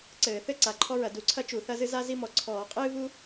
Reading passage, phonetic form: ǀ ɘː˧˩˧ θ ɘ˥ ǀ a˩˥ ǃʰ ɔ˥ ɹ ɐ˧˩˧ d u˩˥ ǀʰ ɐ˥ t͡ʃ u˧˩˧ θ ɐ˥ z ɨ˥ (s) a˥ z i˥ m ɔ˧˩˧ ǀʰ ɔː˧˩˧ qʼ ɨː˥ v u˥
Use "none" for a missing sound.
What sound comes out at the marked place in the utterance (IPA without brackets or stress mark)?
z